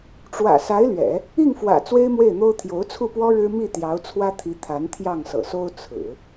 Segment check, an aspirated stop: present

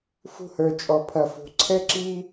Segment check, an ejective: present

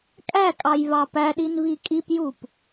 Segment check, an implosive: present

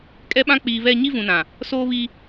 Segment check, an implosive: present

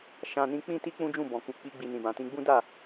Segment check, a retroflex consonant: absent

